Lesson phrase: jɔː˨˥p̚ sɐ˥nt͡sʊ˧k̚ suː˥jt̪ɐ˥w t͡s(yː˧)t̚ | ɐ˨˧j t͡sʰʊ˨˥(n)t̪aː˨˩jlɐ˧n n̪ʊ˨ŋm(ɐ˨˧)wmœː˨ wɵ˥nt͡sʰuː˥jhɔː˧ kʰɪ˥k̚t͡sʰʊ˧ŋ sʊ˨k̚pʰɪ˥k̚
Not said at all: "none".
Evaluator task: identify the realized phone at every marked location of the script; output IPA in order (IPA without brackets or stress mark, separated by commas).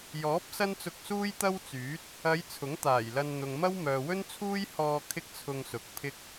yː˨˥, ŋ, ɐ˥